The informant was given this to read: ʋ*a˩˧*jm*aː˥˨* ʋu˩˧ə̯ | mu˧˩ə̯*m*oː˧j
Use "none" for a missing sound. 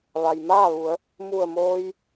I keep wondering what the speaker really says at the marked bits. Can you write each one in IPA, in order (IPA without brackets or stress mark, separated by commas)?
a˩, aː˥˨, m